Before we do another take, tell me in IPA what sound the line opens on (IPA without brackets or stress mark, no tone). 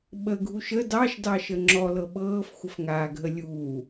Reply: ɓ